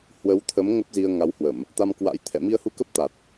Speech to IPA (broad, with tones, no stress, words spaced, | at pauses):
hwə˨˦wt̪ʰə˨˦m ŋə˦˥p̚zi˧ə̯ŋa˨˦whwə˧˩˨m | t̪a˧mkwa̰˧˥j t̪ʰɛ̰˧˨mi˧ə̯hu˧kə˦˥p̚ t̪a˨˩t̚